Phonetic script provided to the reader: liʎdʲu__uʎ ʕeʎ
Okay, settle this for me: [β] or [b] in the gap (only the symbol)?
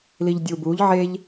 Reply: b